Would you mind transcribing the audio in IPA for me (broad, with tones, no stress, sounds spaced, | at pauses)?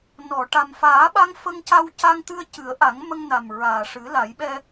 n ɔ˨˩˨ ʈ a˨˩ m f aː˨˩˦ ɓ a˧ ŋ f ə˧ ŋ c a˧ w c a˧ ŋ t̪ ɨ˧ ə̯ c ɨ˨˩˦ ə̯ ʔ a˨˩˦ ŋ m ə˧ ŋ n a˨˩ m ɹ aː˨˩ ʂ ɨ˨˩˦ l a˨˩˦ j ɓ ɛ˧